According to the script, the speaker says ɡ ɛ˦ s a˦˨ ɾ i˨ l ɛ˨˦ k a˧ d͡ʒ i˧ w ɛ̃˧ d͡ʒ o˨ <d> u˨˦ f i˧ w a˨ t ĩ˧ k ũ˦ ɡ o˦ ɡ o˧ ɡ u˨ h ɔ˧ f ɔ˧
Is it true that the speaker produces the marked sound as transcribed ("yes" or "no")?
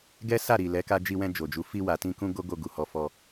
no